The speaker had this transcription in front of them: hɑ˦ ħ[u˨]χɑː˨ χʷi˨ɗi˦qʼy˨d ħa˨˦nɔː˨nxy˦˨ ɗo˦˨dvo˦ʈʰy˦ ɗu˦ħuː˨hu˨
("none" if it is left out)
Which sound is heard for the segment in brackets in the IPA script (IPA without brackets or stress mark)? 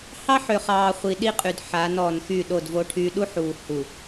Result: ø˨